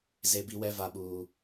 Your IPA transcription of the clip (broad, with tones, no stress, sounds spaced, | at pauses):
z e˦ b i˦ w ɛ˦ v a˦ ɓ uː˦